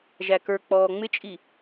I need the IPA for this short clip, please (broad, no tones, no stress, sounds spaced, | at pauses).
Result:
ʒ æ k ə˞ k͡p ɔː ŋ͡m ɪ t͡ʃʼ i